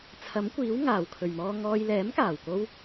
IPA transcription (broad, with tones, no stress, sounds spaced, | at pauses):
t͡sʰ ɐ˨˥ m kʷ iː˨˥ w ŋ aː˨˩ w kʰ ɵ˨˩ ɥ m ɔː˧ ŋ ɔː˧ j l ɛː˨˥ m k aː˨˩ w k o˧ w